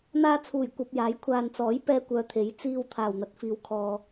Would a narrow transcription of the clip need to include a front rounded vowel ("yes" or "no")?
yes